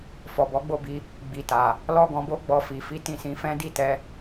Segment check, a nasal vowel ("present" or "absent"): present